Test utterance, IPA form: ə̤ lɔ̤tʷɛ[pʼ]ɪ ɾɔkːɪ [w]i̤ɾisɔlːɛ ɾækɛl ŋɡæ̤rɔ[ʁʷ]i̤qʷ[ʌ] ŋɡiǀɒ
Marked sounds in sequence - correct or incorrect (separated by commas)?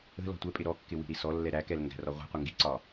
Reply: correct, correct, correct, correct